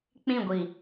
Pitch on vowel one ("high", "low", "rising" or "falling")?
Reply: falling